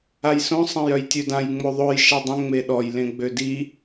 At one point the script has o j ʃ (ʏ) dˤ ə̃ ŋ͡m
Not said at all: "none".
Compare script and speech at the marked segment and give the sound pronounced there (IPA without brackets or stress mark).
ɛ